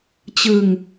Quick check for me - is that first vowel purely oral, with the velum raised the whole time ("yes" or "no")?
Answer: yes